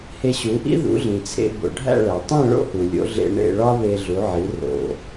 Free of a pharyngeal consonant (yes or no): no